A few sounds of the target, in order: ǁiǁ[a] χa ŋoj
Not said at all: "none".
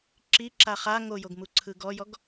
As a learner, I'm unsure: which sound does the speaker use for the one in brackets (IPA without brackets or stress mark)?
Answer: a